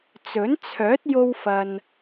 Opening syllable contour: rising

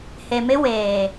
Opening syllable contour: low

